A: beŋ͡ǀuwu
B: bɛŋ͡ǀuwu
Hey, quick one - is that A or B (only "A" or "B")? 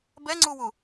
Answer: B